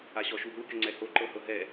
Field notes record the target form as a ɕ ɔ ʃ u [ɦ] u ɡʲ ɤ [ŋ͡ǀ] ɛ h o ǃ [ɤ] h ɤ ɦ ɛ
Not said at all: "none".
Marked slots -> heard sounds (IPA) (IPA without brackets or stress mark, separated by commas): ɦ, ŋ͡ǀ, ɤ